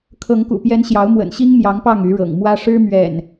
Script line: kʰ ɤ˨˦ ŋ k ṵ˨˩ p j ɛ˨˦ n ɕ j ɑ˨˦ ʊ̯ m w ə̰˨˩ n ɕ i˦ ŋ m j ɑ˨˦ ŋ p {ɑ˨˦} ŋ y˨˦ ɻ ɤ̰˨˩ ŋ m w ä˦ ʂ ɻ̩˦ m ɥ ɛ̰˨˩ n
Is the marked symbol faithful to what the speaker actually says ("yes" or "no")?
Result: no